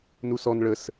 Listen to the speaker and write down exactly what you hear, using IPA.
n u s ɔ n ɭ ə s

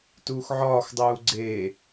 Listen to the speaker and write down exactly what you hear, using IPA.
t uː x ʕ ɒː x dˤ uː ɡ͡ǀ e

